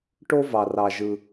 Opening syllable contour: high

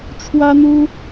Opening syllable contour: high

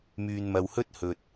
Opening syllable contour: low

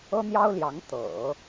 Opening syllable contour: high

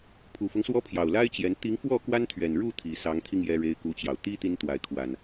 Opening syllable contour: low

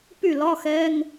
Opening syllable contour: falling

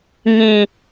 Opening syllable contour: low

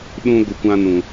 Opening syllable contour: high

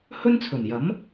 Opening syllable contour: high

